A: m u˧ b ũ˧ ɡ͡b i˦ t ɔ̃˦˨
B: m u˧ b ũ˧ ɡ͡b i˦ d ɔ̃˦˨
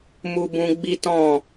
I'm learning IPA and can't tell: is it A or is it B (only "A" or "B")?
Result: A